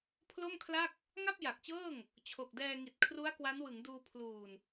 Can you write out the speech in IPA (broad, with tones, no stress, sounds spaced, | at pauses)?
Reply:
pʰ l o˥˩ m kʰ l a˥˩ k̚ | ŋ a˥˩ p̚ j a˨˩ k̚ t͡ɕ ɤː˥˩ ŋ | t͡ɕʰ o˨˩ k̚ d ɛː˧ ŋ i˨˩ t̚ kʰ r u˦˥ a̯ k w a˦˥ n w ɯ˩˦ ŋ d uː˧ pʰ l uː˨˩ n